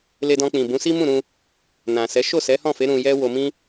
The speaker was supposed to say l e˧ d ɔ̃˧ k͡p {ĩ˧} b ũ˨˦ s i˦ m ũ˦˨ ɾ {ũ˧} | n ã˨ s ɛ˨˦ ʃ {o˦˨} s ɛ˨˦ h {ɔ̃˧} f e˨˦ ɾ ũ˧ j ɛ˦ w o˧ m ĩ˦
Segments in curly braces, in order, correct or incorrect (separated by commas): incorrect, correct, correct, incorrect